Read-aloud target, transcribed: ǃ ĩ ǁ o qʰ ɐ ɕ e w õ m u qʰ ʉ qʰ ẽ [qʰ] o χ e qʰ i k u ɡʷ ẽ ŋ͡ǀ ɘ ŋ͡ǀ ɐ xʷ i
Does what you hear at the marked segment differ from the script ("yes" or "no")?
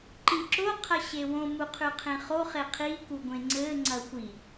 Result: yes